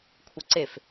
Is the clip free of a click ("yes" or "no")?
no